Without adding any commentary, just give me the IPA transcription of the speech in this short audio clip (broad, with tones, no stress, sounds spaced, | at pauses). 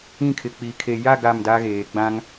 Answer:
ĩ˦˨ kʰ ɪ˨ k͡p i˨ kʰ e˨ j a˦˨ ɡ a˦˨ m d a˦ ɣ eː˨ ɡ͡b ã˦ ŋ